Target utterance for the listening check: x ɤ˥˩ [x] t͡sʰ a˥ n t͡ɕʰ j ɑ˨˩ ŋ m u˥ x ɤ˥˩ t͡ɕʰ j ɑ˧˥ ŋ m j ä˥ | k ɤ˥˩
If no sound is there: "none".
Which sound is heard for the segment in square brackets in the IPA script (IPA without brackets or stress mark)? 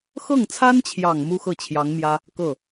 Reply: ŋ